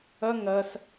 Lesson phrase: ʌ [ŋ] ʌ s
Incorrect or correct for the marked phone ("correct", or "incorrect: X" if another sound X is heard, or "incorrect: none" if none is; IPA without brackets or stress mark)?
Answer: correct